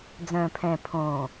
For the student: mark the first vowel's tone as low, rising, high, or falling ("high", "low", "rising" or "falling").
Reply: low